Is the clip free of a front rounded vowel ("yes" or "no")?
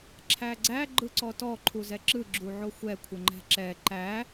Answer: yes